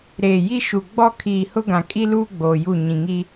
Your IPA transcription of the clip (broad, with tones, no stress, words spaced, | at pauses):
ɾeː˨ji˦ʃu˨ ɡ͡bɔ˦kʰiː˨ hʊ˦ɡã˨kʼi˦luː˦ ɡ͡boː˨ju˦˨ ɲĩ˨ŋi˦